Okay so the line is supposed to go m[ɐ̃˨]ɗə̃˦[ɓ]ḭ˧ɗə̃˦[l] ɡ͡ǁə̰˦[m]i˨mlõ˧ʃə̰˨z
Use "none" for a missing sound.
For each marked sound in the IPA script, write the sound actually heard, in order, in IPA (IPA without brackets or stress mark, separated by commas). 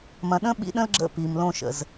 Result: ɐ̃˨, ɓ, l, p